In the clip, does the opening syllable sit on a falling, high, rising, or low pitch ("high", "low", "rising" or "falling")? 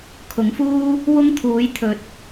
rising